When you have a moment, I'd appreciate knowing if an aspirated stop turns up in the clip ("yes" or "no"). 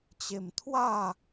yes